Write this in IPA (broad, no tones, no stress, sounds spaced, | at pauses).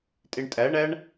tʼ e ɳ tʼ æ ɳ æ ɳ